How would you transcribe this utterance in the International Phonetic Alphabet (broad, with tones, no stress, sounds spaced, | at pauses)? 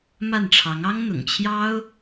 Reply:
m a˥˩ n ʈ͡ʂʰ ɑ˧˥ ŋ ɑ˥ ŋ n̪ ʊ̰˨˩ ŋ t͡ɕʰ j ɑ˥ ʊ̯